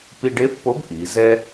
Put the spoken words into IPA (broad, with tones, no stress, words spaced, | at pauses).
pi˧ɖe˧˥fpo˧˥b ʔi˩˧zɛ˥